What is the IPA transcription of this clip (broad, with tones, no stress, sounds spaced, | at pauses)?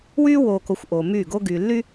w yː˦ w oː˨ k o˨ xʷ ʔ oː˨ m yː˦˨ ɡ o˦ ɡ yː˨ lː y˦